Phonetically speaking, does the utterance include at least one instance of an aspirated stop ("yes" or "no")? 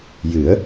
no